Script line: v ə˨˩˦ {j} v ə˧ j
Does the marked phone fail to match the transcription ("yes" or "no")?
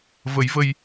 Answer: no